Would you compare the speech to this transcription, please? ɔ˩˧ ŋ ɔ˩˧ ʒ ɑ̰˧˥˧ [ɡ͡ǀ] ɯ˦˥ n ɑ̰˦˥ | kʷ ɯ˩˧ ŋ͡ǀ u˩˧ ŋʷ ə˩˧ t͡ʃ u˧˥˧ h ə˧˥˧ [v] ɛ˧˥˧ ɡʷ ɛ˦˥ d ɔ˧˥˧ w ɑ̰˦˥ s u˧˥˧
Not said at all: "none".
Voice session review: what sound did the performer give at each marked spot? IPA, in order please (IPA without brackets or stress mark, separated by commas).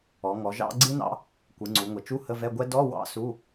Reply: ɡ͡ǀ, v